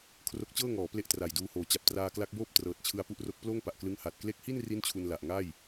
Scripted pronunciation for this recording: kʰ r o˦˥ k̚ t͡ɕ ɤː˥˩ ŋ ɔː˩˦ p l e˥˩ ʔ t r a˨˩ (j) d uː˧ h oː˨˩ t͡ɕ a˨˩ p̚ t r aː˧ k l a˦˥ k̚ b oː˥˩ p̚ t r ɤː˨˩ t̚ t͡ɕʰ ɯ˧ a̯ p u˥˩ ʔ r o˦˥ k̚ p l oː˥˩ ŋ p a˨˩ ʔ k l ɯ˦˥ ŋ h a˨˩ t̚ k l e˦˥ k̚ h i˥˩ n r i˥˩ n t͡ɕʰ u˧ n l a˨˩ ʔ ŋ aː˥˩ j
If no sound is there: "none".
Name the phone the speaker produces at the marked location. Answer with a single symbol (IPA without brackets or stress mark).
j